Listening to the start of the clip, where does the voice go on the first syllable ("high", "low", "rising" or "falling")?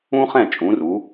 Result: high